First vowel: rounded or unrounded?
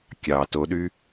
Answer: unrounded